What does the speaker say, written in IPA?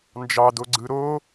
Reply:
n d͡ʒ ɑ d o ɡ͡ǀ ɯ ɾ o

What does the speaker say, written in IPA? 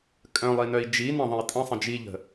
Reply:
kʼ œ̃ lˠ i n œ i̯ d͡ʒ i n ə̃ ðˤ ə̃ i̯ tʼ ə̃ sˤ ə̃ d͡ʒ i ʎ ə̤

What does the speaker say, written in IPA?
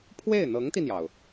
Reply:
pʰ w e˥˩ ɪ̯ n̪ ɤ˧˥ ŋ t̪ i˧ n̪ j ɑ˩ ʊ̯

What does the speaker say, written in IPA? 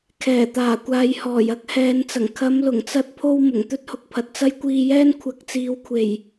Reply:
kʰ ɛː˨˩ t̪ aː˨˩ kʷ aː˨ j h ɔː˨˩ j ɐ˥ k̚ h ɛː˨˧ n t͡s ɐ˨˩ ŋ kʰ ɐ˨˧ m l ʊ˨˩ ŋ t͡s ɐ˧ t̚ pʰ o˧ w m ʊ˨˩ ŋ t̪ ɵ˥ t̚ h ʊ˨ k̚ pʰ ɐ˨ t̚ t͡s ɐ˥ j kʷ iː˧ j ɛː˥ n kʷʰ ɐ˨˥ k̚ t͡s iː˨ w kʷʰ e˨˩ j

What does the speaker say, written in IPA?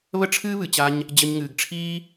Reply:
β ə˦ ʈ͡ʂʰ ɨː˦ β ɨ˨ t͡ɕ a˧ ɲ | d͡ʑ ə˧ ɲ ŋ ɨː˨ ɡ ʈ͡ʂʰ iː˦

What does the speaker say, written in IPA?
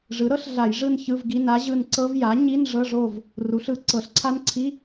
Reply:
ʐ ɯ˩˥ ɾ ɤ˦˥ ɬ ɮ a˧˩˧ j ʐ ɯ˦˨ n ç ɯ˧˥˧ v ɡ i˧˥˧ n a˦˥ ʑ ɯ˦˨ n ǀ ɤ˦˥ v j a˩˥ ɲ i˧˥˧ n ʐ ɤ˧˥˧ ʐ o˦˨ v | r u˩˥ ɬ ɯ˧˩˧ ǀ ɤ˧˩˧ ɬ ǀʰ a˦˥ n ǀʰ i˧˥˧

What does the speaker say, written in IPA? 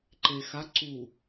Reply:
ǃ e x a ǀ u

